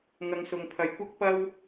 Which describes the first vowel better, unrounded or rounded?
unrounded